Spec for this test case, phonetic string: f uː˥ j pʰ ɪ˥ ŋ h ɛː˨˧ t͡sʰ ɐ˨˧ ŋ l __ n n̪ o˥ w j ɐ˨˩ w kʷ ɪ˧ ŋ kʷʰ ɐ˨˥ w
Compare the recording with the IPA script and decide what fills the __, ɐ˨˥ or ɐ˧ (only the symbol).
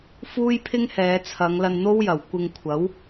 ɐ˧